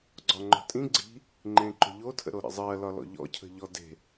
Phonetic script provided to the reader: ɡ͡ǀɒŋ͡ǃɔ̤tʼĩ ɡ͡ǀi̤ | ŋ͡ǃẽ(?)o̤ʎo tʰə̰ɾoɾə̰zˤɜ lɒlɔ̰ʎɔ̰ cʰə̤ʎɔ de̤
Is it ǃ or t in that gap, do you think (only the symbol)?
ǃ